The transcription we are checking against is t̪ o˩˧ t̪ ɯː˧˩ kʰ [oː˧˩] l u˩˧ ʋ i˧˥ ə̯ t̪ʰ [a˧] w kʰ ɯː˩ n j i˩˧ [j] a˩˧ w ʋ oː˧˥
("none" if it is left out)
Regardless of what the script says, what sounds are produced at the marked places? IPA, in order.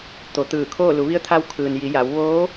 oː˥˨, a˧, j

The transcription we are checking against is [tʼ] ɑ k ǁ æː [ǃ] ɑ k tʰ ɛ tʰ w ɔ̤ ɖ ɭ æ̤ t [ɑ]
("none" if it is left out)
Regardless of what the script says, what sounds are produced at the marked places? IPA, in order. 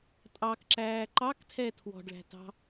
tʼ, ǃ, ɑ̤

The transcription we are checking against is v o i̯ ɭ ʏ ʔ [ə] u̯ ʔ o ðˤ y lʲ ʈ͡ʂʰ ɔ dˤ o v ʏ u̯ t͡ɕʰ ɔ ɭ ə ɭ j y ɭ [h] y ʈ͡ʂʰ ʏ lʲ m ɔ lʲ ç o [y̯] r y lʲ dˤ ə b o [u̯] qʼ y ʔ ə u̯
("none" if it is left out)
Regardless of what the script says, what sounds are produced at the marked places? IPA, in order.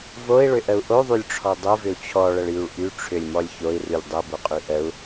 ə, ʔ, i̯, none

